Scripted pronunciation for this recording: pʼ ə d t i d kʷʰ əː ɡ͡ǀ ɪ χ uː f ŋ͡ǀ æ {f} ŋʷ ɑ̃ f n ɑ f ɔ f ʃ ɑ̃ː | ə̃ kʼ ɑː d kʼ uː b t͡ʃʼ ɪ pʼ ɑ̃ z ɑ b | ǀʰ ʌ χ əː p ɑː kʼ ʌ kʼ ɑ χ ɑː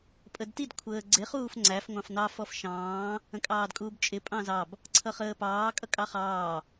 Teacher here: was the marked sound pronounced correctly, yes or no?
yes